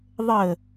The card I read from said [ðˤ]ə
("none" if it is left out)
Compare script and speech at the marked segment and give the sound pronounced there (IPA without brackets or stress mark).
ðˤ